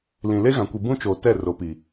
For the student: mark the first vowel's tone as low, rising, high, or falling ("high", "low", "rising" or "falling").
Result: low